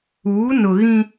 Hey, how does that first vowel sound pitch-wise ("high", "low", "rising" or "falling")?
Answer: rising